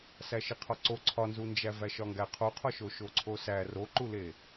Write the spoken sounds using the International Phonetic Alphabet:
s æ ʃ i qʰ ɒ ǀ o ǀʰ ɒ n z u n d͡ʒ æ v æ ʃ ɒ ŋ ɡ æ qʰ o qʰ ɒ ʃ o ʃ o ǀʰ o s æ r o ǃ u l e

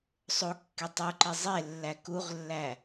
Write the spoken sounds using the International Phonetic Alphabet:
sˤ o kː e tˤ u ǃ i zˤ e lː æ k u ʁ lː æ

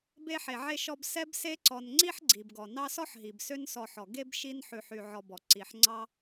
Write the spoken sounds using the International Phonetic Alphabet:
b e˦ ħ e˨ ʕ e˦ ʃ ɔ˦ b s ɛ˥ b s e˦ ǀ ɔ˨ n ŋ͡ǀ i˥ ħ ɡ͡ǀ i˩ b ɡ ɔ˩ n ɑ˦ s ɔ˥ ħ ɦ i˩ b s ø˦ n s ɔ˨ ħ ɔ˩ ɡ e˥ b ʃ i˦ n ħ ʉ˨ ħ y˨ ʕ ɔ˨ b ɔ˩ ǀ i˩ ħ ŋ͡ǀ ɑ˦

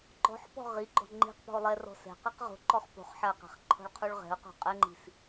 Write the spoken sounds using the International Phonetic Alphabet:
ǃ ɔ̤ ħ p ɔ̤ ʁ i ɡ͡ǃ ɔ̤ ŋ͡ǃ i̤ q p ɔ̤ ʊ̯ lˠ ɛ r ɔ̤ s ɛ̤ q i q ʁ o̤ ǃ ɔ χ p o̤ χ ħ a q ɛ̤ χ ǃʰ ɔ̤ ɭ qʰ u ɭ ʁ ɛ̤ ʊ̯ q ɔ̤ qʼ ɛ ŋ͡ǃ i̤ s

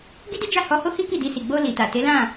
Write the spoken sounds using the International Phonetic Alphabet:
ɡ i˦ d i˦ d͡ʒ a˦˨ h ɔ˧ h o˦ h i˦ k i˦˨ d i˧ s i˨ ɡ͡b o˧ l i˨ t a˨ t e˨˦ l ã˦˨

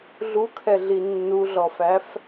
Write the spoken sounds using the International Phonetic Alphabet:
ɮ u kʰ ɛ ɮ i nː u ɮ ɔ f æ f

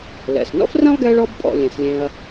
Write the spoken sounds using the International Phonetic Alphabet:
l ɛ̰˩ s n ɔ̰˥ f r ɛ̃˥ lˠ ɡ ɛ˦ ɭ ɔ˥ b pʼ ɔ̰˨ lʲ ẽ˩ s lʲ ẽ˨ ɐ̯

